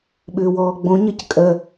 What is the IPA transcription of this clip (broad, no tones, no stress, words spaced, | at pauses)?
ɓʏːwɔːɡ͡bõɲɜc kʼɜ